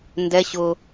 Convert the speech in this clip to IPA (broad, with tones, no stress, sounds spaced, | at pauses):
n d ɛ˦ ɕ ʊ˦